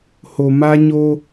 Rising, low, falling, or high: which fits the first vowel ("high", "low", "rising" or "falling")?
low